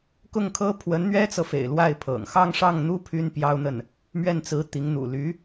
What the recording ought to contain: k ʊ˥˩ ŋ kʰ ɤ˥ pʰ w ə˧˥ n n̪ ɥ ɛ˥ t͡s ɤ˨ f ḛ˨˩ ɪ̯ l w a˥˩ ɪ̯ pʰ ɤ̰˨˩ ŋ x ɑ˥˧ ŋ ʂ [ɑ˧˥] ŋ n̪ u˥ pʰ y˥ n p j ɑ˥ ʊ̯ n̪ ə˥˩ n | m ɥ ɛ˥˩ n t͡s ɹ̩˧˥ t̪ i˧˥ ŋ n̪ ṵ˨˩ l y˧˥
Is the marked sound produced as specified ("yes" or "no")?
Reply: no